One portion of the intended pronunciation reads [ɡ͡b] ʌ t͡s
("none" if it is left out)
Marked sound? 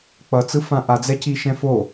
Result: k͡p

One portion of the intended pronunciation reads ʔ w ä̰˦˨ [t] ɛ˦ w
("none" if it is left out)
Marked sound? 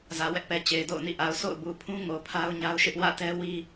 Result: t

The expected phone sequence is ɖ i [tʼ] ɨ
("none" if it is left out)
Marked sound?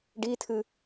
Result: tʰ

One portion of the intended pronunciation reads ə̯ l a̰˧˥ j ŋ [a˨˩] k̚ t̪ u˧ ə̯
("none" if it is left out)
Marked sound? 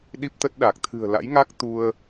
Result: a˦˥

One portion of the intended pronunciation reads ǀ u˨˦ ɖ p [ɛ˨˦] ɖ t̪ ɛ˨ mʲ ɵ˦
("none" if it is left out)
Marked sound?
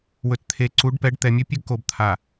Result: ɛ˨˦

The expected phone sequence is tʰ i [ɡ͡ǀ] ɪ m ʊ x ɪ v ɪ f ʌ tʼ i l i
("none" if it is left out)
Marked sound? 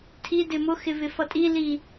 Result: d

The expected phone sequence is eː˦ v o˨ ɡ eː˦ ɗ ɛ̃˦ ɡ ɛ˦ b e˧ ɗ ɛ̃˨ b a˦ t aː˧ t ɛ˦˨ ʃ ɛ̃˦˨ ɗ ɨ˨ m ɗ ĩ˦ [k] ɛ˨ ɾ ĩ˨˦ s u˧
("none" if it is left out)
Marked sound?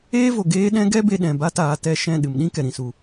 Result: k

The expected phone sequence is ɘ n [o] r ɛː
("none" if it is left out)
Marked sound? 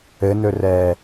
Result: ɵ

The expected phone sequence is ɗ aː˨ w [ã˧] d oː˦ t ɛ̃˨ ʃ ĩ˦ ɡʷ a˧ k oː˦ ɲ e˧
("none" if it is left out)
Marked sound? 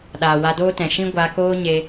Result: a˧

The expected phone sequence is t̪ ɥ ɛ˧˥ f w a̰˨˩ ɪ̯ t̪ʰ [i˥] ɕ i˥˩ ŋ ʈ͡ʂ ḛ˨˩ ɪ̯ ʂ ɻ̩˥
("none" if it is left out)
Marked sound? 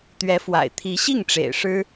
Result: i˧˥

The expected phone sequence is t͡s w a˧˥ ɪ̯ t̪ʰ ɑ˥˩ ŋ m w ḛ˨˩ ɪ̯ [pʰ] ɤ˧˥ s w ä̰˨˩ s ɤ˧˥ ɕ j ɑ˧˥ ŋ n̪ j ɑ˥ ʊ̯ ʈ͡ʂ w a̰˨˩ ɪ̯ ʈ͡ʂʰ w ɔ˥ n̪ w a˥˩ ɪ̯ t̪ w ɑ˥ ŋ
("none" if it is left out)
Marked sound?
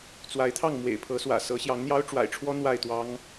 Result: pʰ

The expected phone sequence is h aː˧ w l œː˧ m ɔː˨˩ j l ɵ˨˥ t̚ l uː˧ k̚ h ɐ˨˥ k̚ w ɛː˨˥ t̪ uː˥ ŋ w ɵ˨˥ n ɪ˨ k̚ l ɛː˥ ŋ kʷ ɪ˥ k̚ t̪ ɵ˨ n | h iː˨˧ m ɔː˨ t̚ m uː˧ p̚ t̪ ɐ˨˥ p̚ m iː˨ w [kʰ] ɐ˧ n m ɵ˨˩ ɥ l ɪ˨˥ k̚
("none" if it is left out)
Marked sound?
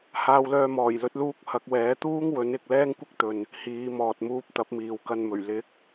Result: k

